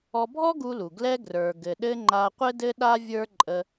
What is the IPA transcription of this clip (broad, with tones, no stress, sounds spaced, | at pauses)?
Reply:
ɔ˧ bʱ ɔ˥ ɡ u˧ l u˩ ɡ l ɛ˧ ɡ r ə˞˩ ɡ ɘ˩ ɗ ɘ˧ ŋ͡ǃ a˧ qʷ ɘ˥ d ɘ˥ ɗ a˥ vʲ ə˞˥ ǃʼ ə˧